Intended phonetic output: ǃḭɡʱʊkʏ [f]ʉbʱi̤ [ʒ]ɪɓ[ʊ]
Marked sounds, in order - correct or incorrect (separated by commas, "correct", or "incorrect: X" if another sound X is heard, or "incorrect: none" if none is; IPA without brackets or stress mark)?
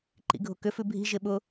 correct, correct, correct